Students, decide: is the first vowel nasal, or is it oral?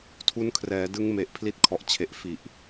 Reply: oral